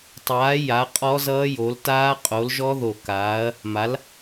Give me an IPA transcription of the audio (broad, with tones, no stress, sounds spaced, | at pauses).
tˤ aː˨˥ j a˨˥ qʼ ɔ˦˥ z ʌː˦˥ j o˨˥ l t aː˦˥ qʼ o˨˥ l ʒ ɔ˦˥ ð o˧˩ k aː˨˥ ɐ̯ | m a˨˥ l